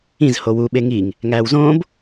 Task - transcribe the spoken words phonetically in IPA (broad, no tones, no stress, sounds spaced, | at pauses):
ĩ z h o w u ɓ e ŋ i ŋ | ŋ æː w z õː b